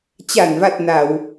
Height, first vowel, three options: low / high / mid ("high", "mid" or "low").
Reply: low